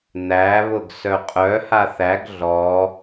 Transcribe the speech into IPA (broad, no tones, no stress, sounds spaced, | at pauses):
n̪ æ β ʊ ɡ s œ qʼ œ h a θ æ ɡ ɮ ɔ